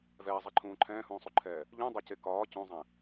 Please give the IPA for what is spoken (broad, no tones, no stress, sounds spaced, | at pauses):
v ɛː zˤ ɛ ǃʰ ũː ǃʰ ɛ̃ː h ũː sˤ u ǃʰ ɛː | ʎ ũ dˤ e c e k ɒː c ũ zˤ ɛ̃